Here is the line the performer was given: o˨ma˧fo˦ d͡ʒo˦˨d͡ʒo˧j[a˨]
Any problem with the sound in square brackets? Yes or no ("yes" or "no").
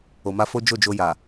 no